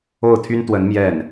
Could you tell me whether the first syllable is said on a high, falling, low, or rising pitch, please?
falling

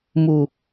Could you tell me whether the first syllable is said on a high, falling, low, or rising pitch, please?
low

